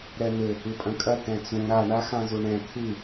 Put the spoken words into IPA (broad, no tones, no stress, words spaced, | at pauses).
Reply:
ɾɛn̪ɘ | ɨpʼɐ̃kʼɐ tɛ̃t͡sũ ɾa ɳaxãzuɳɛ̃ t̪ʰɨ